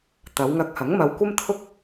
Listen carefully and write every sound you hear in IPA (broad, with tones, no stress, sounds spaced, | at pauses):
t̪ ɐ˨˧ w ŋ ɐ˧ k̚ h ɐ˨˥ ŋ m ɐ˧ w kʷ ɐ˥ m t̪ʰ ʊ˥ k̚